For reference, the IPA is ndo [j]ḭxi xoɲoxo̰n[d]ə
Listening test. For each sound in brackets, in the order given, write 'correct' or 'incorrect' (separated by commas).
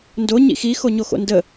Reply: incorrect, correct